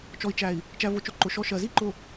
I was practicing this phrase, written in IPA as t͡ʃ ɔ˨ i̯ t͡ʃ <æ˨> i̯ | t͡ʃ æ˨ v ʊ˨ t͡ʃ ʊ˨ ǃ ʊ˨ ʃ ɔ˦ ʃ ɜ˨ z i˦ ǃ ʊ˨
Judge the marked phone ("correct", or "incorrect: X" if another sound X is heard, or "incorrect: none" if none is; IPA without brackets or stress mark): correct